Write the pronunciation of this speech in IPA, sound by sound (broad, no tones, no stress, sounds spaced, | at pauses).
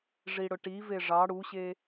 ʐ i ɽ ʊ ʈ i v e ʐ ɑ ɽ u ɕ e